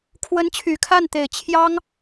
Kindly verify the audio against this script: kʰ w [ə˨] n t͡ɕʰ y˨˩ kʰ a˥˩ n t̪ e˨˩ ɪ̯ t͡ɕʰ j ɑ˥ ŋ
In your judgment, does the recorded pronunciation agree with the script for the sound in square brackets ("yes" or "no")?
no